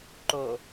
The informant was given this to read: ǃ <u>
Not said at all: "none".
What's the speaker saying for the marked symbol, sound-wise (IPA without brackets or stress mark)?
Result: o